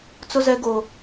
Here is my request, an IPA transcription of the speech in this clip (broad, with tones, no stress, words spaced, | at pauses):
t͡sʊ˦zɛ˦ɡo˦